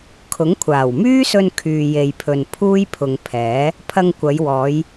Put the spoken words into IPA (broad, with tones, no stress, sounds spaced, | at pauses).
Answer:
kʰ ʊ˨˥ ŋ kʷʰ aː˨˩ w m yː˥ s ɵ˧ n kʰ yː˨ j e˨ j pʰ ɵ˨ n pʰ uː˥ j pʰ ʊ˨ ŋ pʰ ɛː˨˥ | pʰ ɐ˧ ŋ kʷ ɐ˨˧ j w ɔː˨˧ j